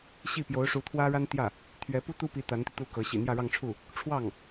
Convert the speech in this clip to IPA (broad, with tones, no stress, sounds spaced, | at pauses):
ɕ i˥˩ p j o˧˥ ʊ̯ ʂ u˧˥ t̪ʰ w ä˥ ɻ a˥ n t̪ j ä˥˩ | t̪ʰ ɥ ɛ˧˥ p u˥ t̪ u˥ p i˧˥ t̪ a˧˥ n t̪ i˧ t̪ u˥˩ k ɤ˧˥ ɕ ḭ˨˩ n̪ j ä˥˧ ɻ ɑ˥˧ ŋ ʈ͡ʂʰ u˥˩ | ʈ͡ʂʰ w ɑ˥˩ ŋ